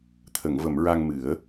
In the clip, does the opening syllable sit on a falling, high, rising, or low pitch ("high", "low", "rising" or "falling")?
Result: low